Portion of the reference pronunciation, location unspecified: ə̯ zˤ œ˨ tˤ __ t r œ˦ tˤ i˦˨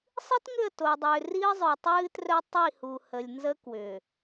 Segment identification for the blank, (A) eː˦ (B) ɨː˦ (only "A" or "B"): B